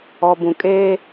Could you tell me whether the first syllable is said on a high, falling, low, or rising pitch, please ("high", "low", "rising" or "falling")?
low